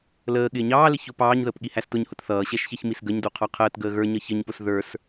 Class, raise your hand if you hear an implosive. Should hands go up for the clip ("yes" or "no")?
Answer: yes